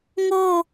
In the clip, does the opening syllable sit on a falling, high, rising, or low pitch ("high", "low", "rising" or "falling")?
falling